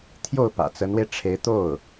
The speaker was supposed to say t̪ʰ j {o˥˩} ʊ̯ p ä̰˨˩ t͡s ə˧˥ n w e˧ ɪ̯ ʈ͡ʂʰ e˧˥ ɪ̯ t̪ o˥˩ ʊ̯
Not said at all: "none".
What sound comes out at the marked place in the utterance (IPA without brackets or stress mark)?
o˥˩